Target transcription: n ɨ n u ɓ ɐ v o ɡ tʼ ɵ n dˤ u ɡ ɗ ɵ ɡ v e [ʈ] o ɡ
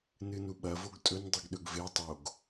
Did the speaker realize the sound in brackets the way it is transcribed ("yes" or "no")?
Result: no